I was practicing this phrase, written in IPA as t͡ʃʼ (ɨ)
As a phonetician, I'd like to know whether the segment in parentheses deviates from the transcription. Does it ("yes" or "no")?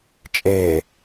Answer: yes